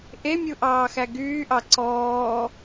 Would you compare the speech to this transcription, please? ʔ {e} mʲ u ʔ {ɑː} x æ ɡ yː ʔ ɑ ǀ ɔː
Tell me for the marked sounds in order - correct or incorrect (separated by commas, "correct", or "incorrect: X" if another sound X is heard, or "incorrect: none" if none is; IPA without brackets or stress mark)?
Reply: correct, correct